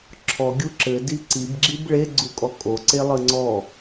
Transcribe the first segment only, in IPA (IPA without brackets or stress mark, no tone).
ǁʰ